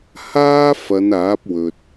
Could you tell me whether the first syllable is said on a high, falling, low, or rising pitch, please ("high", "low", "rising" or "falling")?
high